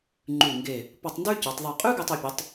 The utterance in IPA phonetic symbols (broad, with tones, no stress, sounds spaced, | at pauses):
ŋ͡ǃ ʉ˧˩ ŋ ɡ e˧˩ | p ɔ˧ tˤ n d ʉ˥ c ø˩˧ tˤ ðˤ ʉ˧˩ qʼ ʉ˥ ɡ ɛ˧ tˤ ø˩˧ pʲ ʉ˩˧ tˤ